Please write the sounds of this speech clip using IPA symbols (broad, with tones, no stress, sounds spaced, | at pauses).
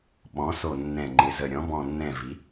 ɓ ɔ̃˩˧ s o˨˩ nː ɛ̃˨˩ ŋ͡ǃ ɪ˩˧ z ə˨˩ ɾʲ ɔ̃˩˧ b ɔ̃˨˩ nː ɛ̃˨˩ v i˩˧